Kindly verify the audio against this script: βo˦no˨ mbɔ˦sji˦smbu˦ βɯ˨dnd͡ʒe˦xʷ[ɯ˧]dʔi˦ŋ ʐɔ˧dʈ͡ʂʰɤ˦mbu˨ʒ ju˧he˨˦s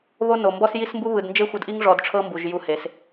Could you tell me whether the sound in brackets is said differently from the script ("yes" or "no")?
yes